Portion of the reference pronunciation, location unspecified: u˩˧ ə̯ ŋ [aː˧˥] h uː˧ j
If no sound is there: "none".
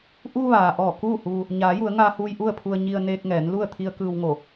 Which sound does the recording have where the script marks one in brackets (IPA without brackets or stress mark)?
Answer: aː˧